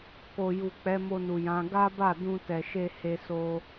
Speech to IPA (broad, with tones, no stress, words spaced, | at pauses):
ko˨ju˨ k͡pɛ˨˦mo˧nu˨jã˨˦ ɡa˦ba˦˨ dũ˧tɛ˨ʃe˧ he˧ so˧